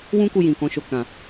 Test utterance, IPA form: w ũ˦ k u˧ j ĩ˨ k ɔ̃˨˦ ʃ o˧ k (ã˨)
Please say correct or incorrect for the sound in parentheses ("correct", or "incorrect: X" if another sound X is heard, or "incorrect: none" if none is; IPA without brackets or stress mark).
correct